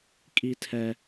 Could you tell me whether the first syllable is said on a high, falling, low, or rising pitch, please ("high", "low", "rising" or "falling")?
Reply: high